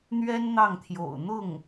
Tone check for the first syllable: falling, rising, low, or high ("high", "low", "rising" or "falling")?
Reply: high